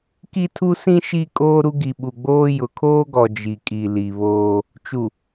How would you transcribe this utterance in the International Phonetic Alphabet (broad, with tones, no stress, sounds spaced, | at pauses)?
k i˦ tʰ u˦ s ĩ˦ ʃ i˦ kʼ oː˦ ɾ u˦ ɡ i˨ ɓ u˨ ɡ͡b oː˦ j ʊ˨ kʰ oː˦ ɡ ɔ˨ d͡ʒ i˨ kʼ i˨ l i˨ β oː˦ | t͡ʃ u˨